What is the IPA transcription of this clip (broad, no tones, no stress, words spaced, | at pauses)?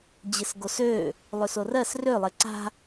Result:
d͡ʑɪsɡosø | lˠøsorɜs rø lˠeǀa̤